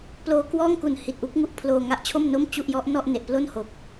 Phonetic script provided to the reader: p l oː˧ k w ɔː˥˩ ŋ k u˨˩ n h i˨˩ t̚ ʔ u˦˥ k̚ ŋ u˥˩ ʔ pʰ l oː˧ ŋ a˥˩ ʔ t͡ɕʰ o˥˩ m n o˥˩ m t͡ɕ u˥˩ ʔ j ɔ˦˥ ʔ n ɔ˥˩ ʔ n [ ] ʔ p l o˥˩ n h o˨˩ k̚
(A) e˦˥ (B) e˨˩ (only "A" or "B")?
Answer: B